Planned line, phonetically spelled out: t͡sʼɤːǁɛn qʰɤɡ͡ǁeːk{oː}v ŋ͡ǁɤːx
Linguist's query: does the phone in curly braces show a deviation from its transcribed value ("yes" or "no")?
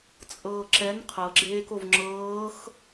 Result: yes